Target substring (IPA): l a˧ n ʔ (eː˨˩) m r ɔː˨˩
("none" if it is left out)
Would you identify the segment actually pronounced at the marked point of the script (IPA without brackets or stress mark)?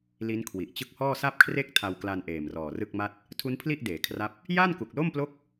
eː˨˩